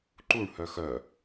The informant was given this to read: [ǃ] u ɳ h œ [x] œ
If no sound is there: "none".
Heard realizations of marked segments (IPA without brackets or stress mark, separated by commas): ǃ, x